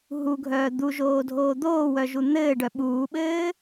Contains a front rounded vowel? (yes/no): yes